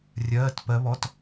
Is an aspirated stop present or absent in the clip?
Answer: absent